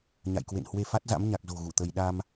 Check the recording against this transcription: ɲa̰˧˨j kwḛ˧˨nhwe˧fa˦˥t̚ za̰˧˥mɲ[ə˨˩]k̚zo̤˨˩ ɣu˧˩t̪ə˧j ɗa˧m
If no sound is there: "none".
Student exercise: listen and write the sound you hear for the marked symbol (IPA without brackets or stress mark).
a˨˩